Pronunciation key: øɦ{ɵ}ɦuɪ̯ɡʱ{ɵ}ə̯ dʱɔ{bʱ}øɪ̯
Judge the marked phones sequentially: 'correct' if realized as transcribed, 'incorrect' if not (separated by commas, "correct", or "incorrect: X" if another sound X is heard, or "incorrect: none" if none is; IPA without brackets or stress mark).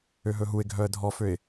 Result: correct, incorrect: œ, incorrect: f